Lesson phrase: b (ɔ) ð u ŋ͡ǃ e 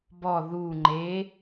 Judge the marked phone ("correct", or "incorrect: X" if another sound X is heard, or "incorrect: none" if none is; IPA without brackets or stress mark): correct